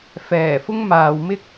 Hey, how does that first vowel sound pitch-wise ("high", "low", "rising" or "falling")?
low